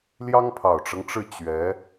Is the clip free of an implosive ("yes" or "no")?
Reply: yes